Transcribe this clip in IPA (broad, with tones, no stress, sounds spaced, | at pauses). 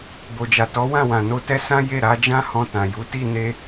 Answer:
b o˨ d͡ʒ a˨ t ɔ˨˦ w ã˦˨ w ã˨ n o˧ t ɛ˦ s ã˦ j e˦˨ ɾ a˧ d͡ʒ ã˦ h ɔ̃˧ t ã˨ j u˨˦ t i˦˨ n e˧